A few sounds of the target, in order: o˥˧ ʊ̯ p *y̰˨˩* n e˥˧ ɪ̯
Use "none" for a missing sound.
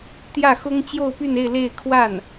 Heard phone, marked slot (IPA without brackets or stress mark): y˥˧